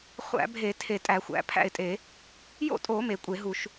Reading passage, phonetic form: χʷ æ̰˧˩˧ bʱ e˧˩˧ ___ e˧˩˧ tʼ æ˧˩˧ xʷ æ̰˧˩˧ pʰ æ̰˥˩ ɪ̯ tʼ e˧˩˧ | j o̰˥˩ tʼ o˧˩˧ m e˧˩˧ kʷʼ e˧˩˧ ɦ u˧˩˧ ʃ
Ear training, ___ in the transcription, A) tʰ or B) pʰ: A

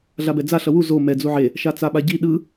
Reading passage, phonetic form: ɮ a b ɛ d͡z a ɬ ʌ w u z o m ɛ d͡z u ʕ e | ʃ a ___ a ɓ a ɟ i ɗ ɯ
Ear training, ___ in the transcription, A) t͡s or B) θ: A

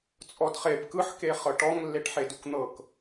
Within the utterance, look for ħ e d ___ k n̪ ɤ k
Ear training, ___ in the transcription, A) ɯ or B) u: B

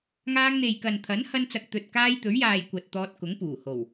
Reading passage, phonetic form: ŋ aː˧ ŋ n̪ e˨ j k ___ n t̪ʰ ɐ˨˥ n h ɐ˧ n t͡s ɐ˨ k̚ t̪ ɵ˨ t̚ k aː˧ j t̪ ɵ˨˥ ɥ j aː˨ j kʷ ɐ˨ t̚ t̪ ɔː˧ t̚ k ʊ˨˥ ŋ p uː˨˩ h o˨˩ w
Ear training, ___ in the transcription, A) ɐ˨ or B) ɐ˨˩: A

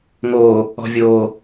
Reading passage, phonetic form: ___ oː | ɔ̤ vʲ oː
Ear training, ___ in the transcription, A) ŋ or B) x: A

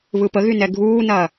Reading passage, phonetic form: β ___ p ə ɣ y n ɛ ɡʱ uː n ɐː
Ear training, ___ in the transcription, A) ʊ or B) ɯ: B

